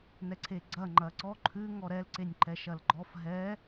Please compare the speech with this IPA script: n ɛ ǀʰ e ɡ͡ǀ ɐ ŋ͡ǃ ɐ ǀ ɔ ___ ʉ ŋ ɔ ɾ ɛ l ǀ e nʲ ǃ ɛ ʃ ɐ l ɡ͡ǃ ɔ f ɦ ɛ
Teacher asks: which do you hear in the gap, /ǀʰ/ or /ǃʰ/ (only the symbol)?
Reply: ǃʰ